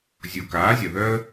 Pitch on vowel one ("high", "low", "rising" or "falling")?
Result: low